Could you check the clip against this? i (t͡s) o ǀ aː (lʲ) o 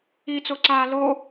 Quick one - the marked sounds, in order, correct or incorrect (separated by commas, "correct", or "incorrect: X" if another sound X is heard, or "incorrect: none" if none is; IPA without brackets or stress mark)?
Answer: correct, incorrect: l